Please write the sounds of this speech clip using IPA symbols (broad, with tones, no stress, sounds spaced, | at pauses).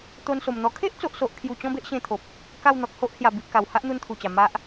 t̪ o˧ n s o˨˩ m n̪ ɔ˧ kʰ e˦ ʔ t͡s o˨ ʔ s o˨ ʔ kʰ j u˨˩ t͡ɕ ɔ̃˦ b e˦ ʔ ɕ ẽ˧ t̪ʰ o˨ p̚ | k a˥˧ w n̪ ɔ˨ k̚ h o˦ ʔ h j a˨˩ b i˨ ʔ k a˨˩ w h a˦ ʔ n̪ u˧ n t̪ʰ u˨˩ t͡ɕ a˨˩ m a˦ ʔ